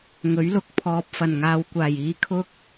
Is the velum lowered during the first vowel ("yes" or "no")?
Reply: no